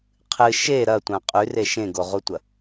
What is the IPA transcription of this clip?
qʰɨ ʃe ɾɐtʷã qʼʉre ʃẽɡoʁutʷɐ

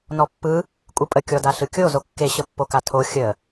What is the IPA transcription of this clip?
nɔpːɯ | kʷʼɯpʼə kʲɔdaɬɯkʲo zokːe ɕəpːokatʰo xʲə

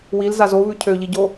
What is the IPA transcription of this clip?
wilzaz oβʉ cʰøʎiɟo

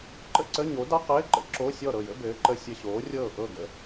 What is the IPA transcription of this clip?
ǃə̰˥˨ǀə˧˥˧ ɲo˨˥da˥qɘː˧˥˧ǃə̰˨˥ ǁo˧˥˧sʲɔ˥˨ ɾɤ˥˨jə̰˥bɘː˨˥ǃə˧˥˧ sʲə˧˥˧ɕoː˨˥rʲɤː˥˨ ʔɤ˥˨ɡə̰˥˨

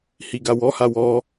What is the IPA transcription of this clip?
hiɡawɔ hawɔ

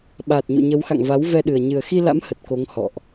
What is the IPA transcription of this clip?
ɓaː˨˩t̚ɲṵ˧˨ɲə˨˦wxa̰˧˨ŋ va˨˦wvɛ˧ɗɨ˨˩ə̯ ɲɨ˨˩ə̯xi˧la̰˧˥m hə˨˩t̚ko˨˦ŋ hɔ̰˧˨ʔ

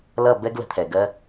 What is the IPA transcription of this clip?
lʌ˦˨ bɛ˦ɡlə̤˨˦t̪ʰɛ˨ ɡɜ˧

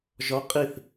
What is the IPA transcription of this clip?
ʒɔ qʼiθ

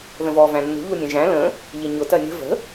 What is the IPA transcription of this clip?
ðə̃vɔːvæ̃nːṳ ʎunʲɛ̃ʒæ̃ lə̃ | ʎɪɲʊ tɜnʲə̤ və̤

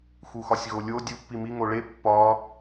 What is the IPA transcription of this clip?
xuxɒsʲɣolʲo dʲu pːimi ŋoɭe pːɒ

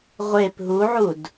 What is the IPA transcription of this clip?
ʁʷep ɦuʕud

